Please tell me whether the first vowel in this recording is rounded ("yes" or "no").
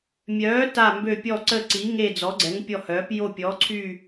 yes